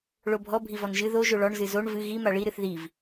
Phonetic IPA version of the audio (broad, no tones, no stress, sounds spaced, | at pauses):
ɭ o bʱ ɔ bʱ i v ɔ n ʒ ɨ ð o ʒ o ɭ ɔ ɳ z ɨ z o ɳ v ɨ ɣ i m a ɭ i ɾ ɨ θ ð i v